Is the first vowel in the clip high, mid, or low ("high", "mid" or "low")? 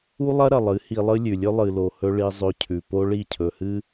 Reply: high